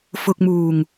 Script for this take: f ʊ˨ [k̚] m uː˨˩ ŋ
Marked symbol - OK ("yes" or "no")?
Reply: yes